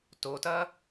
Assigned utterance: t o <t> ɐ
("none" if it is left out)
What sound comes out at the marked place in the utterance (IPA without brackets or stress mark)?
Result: t